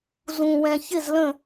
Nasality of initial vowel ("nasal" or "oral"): nasal